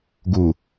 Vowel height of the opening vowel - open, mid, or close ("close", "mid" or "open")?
close